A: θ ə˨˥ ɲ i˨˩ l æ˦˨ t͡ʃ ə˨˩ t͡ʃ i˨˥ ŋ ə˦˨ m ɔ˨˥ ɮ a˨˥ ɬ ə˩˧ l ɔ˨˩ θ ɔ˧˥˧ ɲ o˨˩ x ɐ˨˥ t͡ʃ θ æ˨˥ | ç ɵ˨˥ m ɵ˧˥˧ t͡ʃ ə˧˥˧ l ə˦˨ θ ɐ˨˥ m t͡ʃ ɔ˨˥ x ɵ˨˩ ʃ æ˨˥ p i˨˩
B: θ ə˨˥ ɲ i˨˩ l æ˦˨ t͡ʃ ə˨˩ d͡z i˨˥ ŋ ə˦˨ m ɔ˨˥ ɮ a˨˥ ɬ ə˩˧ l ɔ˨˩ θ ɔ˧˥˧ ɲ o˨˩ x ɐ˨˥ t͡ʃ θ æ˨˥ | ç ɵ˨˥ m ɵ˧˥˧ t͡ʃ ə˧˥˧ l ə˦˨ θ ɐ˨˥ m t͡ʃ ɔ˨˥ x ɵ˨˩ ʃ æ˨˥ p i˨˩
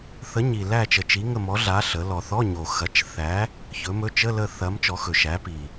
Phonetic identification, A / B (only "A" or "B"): A